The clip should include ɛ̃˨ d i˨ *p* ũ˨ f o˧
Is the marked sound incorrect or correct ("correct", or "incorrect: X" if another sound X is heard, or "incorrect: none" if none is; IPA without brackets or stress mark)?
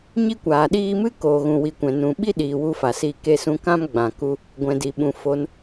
incorrect: ɓ